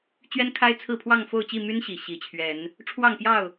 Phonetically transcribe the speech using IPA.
t͡ɕɥɛ˦nkʰa˦ɪ̯t͡sʰɹ̩˥˨ pʰwɑ˥˨ŋfo˥˨ʊ̯t͡ɕi˥˨my˦n ɕi˨˩ ɕi˨˦t͡ɕʰɥɛ˨˦n | ʈ͡ʂʰwɑ˥˨ŋpjɑ˥˨ʊ̯

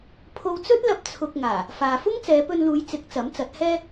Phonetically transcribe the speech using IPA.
pʰo˧wt͡sɵ˥t̚lɐ˧p̚ t͡sʰʊ˧k̚ŋaː˨˩ | faː˨fʊ˥ŋ t͡sɛː˨˧pɵ˧nluː˨˧j t͡sɪ˨˥k̚ t͡sɐ˨˥mt͡sɐ˨˥t̚hɛː˥

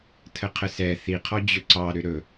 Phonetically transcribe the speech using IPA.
tʰəqʰəsɛ θiqʰɔ d͡ʑɵǀɑ ɾʏɾɵ

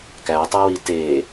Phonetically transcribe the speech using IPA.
kætˤewi te

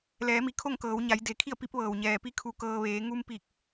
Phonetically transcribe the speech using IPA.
lɛː˩˧mi˩ kʰo˥˨ŋkɤː˩˧wɲa˩˧j de˩kʰi˥˨ə̯ pi˧˥p̚ʋɤː˩w ɲɛː˩pi˧ kʰu˧kɤː˧ ʋeː˩˧ŋu˧m pi˧˩k̚

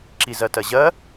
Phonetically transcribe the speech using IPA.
ǁizɜtɜʑɜ

